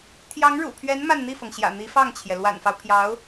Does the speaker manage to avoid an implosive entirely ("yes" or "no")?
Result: yes